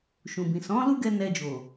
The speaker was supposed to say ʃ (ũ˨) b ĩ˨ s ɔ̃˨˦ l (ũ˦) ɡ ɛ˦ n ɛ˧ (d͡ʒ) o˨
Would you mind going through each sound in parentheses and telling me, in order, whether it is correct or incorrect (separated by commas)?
correct, incorrect, correct